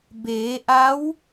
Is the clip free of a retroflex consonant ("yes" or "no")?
yes